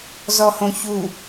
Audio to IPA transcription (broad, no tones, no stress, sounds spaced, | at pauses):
z ɔ h õ ç u